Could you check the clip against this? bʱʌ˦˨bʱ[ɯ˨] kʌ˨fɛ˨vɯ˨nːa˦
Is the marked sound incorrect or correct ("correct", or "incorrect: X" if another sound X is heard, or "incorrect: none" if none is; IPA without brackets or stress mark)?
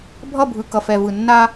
correct